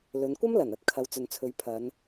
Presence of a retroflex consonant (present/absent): absent